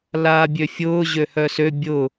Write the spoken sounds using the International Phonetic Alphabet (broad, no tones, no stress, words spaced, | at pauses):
laːbʲøfʲʊː ʑøhœsø bʲʊ